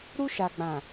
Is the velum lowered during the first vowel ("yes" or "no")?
no